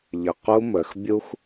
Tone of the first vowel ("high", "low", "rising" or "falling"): low